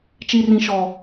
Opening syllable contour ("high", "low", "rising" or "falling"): high